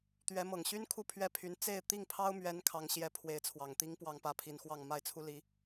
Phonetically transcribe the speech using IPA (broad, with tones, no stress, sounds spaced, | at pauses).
t̪ ɥ ɛ˧˥ m ɤ˨˩ ŋ ɕ y˥ n kʰ u˥˧ pʰ ɥ ɛ˥˩ pʰ y˧˥ n t͡s e˥˧ ɪ̯ t̪ i˥˩ ŋ pʰ ɑ˥ ʊ̯ m ɥ ɛ˧˥ n kʰ ɑ˧˥ ŋ ɕ j ɛ˧˥ pʰ w e˧˥ ɪ̯ t͡sʰ w ɑ˨˩ ŋ t̪ i˥ ŋ p w ɑ˥˧ ŋ p ä˥˩ pʰ i˧˥ n x w ɑ˥˧ ŋ m a˥˩ ɪ̯ t͡sʰ u˥ l i˧˥